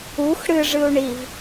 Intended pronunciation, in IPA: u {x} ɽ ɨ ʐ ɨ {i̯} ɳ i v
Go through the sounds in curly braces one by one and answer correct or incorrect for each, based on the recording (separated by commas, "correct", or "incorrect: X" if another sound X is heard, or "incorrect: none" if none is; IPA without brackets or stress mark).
correct, incorrect: u̯